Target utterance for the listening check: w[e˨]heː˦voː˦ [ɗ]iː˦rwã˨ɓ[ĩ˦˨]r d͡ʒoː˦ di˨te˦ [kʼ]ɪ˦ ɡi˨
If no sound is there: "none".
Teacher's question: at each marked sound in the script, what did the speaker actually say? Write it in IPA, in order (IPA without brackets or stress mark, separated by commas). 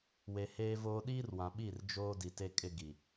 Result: e˨, ɗ, i˦˨, kʼ